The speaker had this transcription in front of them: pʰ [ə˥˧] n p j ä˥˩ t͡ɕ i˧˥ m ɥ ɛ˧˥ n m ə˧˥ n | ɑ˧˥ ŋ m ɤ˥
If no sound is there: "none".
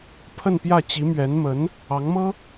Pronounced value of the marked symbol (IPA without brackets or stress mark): ə˥˧